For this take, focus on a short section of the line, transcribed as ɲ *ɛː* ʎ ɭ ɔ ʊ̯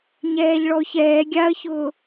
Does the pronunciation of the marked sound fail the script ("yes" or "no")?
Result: no